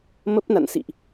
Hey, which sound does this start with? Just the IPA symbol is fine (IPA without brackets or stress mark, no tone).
m